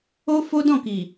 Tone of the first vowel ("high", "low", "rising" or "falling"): high